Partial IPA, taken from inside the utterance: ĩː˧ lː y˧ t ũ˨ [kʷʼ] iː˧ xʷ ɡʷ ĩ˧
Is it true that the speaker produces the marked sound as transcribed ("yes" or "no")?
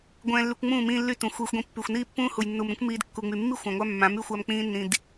no